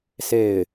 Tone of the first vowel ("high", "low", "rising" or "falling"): falling